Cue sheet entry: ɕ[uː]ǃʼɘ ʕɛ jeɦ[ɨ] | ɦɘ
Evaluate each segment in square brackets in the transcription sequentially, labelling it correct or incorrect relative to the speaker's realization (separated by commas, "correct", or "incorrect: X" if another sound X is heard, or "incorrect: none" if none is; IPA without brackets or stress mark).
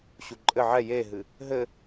incorrect: u, correct